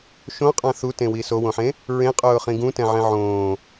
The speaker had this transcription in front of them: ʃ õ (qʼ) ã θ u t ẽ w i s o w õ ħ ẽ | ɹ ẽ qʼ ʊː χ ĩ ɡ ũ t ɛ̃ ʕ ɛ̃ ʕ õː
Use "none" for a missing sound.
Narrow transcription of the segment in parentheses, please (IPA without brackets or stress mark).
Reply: qʼ